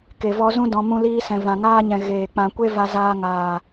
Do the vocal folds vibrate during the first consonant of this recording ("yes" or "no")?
no